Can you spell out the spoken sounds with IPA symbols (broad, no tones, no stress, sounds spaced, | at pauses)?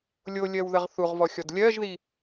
lʲ o lʲ ɜ w ð ə ʁ θ u ʁ v ɔ xʲ ɔ d lʲ ɜ ʒ ð i